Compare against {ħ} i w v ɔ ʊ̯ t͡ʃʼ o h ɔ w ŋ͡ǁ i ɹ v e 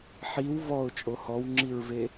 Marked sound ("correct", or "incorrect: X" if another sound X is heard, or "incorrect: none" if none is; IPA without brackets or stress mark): correct